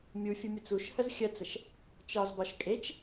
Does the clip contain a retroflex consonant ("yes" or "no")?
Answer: no